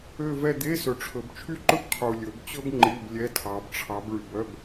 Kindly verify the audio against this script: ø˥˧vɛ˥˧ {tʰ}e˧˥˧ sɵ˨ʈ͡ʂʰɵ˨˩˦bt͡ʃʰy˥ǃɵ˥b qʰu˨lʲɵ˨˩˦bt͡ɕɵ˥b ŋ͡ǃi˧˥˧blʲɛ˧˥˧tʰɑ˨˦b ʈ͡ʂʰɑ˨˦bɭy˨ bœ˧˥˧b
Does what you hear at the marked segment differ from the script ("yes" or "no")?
yes